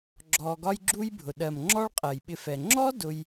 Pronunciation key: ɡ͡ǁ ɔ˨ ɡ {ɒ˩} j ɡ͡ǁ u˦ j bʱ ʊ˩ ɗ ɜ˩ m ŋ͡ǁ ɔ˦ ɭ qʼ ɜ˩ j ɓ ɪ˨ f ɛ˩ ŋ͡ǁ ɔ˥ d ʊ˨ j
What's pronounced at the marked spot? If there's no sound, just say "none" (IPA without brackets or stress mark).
ɒ˦